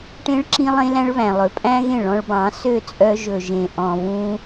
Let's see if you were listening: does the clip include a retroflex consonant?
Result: yes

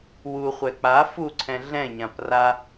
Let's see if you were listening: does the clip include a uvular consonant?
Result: yes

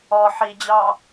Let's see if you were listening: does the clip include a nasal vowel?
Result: no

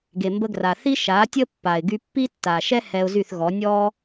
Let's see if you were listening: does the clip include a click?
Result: no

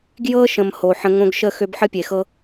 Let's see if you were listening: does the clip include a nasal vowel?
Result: yes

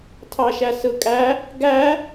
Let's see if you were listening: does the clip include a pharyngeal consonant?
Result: no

